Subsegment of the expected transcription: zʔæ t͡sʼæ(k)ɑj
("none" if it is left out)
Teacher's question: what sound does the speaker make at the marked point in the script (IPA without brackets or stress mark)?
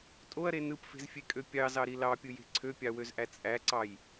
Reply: ǀ